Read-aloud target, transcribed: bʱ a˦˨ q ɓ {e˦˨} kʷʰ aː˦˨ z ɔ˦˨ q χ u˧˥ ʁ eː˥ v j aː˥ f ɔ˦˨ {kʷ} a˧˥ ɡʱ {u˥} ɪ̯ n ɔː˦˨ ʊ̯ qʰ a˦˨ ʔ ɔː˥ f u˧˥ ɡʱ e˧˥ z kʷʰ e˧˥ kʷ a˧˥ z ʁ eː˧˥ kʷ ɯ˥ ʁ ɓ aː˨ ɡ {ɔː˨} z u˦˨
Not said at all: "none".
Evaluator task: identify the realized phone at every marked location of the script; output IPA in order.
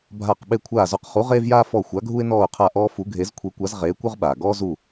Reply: e˦˨, xʷ, u˥, ɔː˥

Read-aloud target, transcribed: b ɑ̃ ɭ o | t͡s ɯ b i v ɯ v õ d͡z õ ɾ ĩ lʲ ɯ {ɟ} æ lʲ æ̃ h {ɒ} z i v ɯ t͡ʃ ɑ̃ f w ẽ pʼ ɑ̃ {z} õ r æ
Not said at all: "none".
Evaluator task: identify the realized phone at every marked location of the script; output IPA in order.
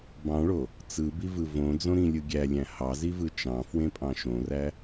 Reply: ɡʲ, ɑ, ʃ

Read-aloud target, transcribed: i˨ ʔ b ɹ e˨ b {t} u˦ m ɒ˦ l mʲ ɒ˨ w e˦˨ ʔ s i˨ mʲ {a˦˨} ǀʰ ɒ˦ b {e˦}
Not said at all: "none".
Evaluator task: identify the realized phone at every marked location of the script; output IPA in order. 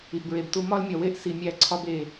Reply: t, æ˦˨, e˨

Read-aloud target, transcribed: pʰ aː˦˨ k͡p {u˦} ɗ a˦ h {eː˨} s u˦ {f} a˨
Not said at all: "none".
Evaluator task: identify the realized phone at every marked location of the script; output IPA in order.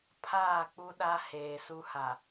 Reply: u˦, eː˨, h

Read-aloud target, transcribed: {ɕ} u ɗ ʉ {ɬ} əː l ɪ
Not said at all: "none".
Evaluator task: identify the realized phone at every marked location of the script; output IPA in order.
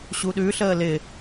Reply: ɕ, ɬ

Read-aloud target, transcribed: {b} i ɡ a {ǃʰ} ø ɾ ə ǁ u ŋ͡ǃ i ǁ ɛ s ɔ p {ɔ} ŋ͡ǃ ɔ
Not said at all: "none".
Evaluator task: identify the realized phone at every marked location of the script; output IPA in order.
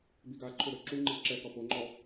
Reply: b, ǃʰ, o

